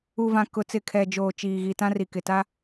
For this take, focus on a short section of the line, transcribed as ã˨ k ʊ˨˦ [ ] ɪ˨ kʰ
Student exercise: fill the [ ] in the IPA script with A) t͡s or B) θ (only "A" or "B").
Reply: A